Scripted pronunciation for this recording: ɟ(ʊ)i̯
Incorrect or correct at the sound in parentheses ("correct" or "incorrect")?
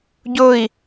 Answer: correct